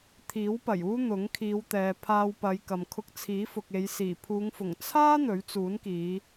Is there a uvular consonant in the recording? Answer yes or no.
no